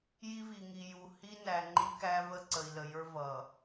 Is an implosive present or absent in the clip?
absent